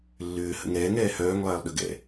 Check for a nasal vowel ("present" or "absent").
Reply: absent